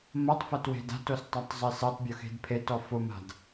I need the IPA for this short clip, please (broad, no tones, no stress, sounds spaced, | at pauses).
m ɐ tˤ f ɐ t w e̤ d a̤ t o s tˤ a tˤ zˤ e s ɛ tˤ bʲ ʊ x e̤ d pʰ e t ɔ f ʊ m a̤ d